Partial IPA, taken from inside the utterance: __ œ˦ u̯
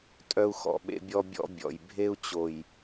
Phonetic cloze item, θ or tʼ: tʼ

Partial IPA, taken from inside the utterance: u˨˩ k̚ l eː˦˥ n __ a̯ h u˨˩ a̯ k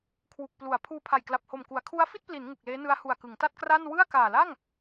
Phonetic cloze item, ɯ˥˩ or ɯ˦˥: ɯ˦˥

